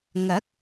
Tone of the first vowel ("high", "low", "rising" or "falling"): rising